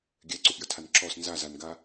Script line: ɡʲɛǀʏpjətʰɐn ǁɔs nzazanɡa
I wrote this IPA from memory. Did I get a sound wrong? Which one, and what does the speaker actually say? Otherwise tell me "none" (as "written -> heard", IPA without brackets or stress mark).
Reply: ɐ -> a